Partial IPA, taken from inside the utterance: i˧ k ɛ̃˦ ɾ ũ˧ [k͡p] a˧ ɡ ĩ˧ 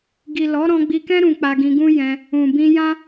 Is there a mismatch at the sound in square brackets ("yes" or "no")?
no